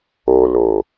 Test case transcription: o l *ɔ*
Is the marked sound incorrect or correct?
incorrect